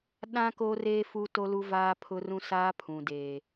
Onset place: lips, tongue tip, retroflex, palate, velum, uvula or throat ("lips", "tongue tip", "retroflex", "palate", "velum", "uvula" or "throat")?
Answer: tongue tip